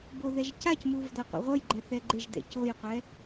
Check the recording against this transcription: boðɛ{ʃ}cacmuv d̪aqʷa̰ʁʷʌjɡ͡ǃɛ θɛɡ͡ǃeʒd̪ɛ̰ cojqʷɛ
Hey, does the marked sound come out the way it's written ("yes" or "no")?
no